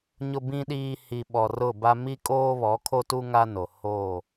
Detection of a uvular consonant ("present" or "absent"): absent